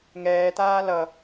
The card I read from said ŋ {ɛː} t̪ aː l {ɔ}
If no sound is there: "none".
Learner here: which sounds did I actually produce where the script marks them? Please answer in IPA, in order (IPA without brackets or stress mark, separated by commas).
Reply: ɛː, ʌ